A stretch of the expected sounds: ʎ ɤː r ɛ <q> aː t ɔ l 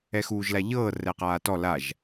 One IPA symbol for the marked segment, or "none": q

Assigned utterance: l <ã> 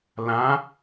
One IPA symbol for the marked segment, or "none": ã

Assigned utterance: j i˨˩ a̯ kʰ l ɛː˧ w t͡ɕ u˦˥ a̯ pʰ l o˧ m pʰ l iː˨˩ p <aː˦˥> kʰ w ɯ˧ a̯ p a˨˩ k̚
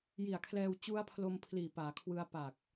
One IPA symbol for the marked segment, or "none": aː˩˦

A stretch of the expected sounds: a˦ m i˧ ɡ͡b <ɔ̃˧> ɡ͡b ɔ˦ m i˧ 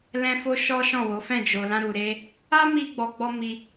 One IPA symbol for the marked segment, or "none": ɔ˧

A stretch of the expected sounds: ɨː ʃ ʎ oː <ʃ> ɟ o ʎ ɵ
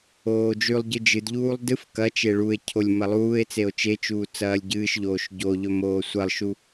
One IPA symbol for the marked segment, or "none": ʃ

